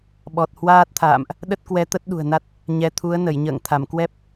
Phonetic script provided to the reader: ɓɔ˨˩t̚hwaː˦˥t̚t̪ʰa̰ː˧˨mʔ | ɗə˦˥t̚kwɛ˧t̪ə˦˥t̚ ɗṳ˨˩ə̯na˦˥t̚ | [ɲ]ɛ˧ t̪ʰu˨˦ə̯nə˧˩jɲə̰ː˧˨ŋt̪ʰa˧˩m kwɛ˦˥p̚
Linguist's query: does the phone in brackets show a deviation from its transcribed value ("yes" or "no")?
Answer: no